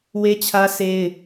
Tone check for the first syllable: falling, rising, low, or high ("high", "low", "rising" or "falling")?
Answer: high